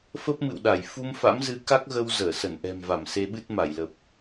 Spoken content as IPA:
f ə˦˥ p̚ m ɨ̰˧˨ w ɗ a˧˩ j f u˧ m f a̰˧˥ m z ɨ˨˦ k a˦˥ k̚ ɣ ə˧ w z əː˧˩ s ə˧˩ n ʔ ɛ̤˨˩ m v a˧˩ m s e˧ ɓ ɨ˦˥ t̚ m a˧˩ j l ə˨˩ p̚

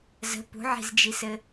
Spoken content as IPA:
z ə̤ p ṳ ʕ i̤ z d͡ʒ i s ɘ

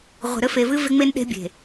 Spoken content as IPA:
ʁʷ e̤˨ ɾ ɘ˦ f e˨ v ɨ˦ v e˦ ŋ͡m e˦ n ɗ e̤˦ bʲ e̤˨

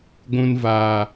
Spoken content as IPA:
ɡʷ ũ˧ n v aː˨

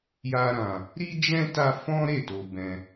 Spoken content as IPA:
j a˦ ɾ ã˧ | ɾ i˦ d͡ʒ ɛ̃˦ t a˧ f ɔ̃˦ ɾ e˦˨ t o˧ b ɛ̃˧

